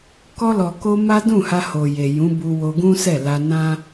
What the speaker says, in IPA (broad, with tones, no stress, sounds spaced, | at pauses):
k ɔ˧ l ɔ˨ k o˧ m a˦ d ũ˦˨ h a˧ h o˨ j e˨ j ũ˨˦ b u˧ w o˧ ɡ ũ˦ s ɛ˦˨ l a˧ n ã˦